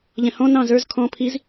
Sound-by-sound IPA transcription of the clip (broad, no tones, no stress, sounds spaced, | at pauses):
ʎ ɛ̃ h ɔ̃ n ɑ̃ z ə˞ z kʰ ɔ̃ pʰ i z